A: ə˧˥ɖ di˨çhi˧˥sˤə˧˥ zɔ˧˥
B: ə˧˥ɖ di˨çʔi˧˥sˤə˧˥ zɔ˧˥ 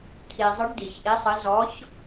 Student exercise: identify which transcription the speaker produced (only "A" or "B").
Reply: B